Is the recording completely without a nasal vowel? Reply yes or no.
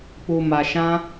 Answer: no